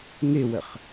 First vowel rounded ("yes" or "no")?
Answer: no